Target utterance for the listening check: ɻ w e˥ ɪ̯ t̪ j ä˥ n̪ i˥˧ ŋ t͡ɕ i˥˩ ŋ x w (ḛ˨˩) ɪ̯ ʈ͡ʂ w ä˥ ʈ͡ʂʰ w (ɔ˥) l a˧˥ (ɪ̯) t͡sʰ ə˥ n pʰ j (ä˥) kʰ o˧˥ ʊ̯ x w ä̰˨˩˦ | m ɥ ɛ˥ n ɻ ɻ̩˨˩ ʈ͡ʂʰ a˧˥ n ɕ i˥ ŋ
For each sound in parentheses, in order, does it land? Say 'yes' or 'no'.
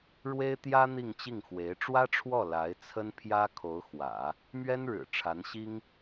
no, no, yes, yes

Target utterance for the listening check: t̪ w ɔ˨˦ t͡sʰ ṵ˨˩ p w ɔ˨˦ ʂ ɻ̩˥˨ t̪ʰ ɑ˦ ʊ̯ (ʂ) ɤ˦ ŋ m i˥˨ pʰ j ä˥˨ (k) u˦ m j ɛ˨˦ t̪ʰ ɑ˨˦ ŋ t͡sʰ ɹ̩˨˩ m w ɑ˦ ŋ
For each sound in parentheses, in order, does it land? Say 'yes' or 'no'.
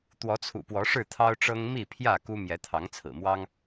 no, yes

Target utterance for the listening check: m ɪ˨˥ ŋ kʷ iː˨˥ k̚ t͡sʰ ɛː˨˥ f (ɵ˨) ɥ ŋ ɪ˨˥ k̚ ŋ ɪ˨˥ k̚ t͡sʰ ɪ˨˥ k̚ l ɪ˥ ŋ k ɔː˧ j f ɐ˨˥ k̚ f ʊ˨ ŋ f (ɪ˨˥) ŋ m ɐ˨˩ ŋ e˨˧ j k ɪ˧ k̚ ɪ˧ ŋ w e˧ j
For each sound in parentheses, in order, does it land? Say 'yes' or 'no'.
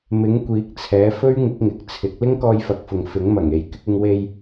no, yes

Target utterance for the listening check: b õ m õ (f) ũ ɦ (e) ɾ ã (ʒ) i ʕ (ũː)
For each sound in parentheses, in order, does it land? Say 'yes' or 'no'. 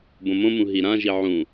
no, no, yes, no

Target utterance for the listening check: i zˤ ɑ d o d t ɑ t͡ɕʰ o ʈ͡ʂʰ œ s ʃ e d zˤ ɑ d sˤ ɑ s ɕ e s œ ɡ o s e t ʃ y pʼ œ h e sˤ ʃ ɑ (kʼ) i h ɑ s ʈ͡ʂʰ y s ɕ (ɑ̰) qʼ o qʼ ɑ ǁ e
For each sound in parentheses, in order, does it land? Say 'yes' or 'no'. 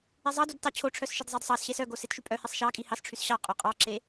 yes, no

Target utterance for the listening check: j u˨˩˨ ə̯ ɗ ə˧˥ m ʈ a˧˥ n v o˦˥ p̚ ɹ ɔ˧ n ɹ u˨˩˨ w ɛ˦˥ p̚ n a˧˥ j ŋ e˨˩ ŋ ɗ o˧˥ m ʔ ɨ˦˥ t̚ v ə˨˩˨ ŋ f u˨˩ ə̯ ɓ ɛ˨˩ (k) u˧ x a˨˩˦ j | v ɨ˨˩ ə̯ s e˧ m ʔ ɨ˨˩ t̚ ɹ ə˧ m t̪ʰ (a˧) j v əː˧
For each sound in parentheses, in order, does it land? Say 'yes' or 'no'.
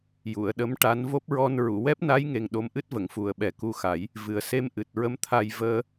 yes, yes

